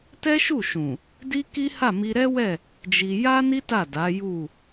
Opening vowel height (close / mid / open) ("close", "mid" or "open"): mid